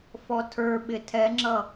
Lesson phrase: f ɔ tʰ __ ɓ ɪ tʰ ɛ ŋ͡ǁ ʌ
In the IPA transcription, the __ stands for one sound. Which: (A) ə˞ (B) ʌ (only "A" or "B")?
A